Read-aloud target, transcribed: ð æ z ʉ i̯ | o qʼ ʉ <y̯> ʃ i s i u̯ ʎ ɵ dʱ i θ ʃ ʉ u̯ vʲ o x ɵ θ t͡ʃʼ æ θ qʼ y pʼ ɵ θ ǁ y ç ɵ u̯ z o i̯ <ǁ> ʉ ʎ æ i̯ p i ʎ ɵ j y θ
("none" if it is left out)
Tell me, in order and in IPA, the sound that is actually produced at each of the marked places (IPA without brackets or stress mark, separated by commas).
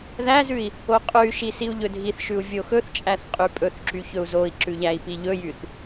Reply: y̯, ǁ